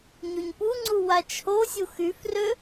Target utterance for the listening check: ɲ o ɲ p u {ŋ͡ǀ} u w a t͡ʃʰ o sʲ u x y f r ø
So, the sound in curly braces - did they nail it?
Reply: yes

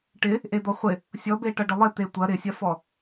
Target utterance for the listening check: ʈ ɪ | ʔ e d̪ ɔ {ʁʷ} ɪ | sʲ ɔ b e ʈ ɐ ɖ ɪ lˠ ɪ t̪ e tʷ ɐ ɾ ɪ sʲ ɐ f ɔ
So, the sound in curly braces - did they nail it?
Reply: no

